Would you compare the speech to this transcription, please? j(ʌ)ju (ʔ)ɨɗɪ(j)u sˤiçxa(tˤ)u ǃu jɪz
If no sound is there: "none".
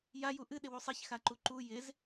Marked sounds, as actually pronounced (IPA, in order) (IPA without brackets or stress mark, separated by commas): a, ʔ, w, ǃ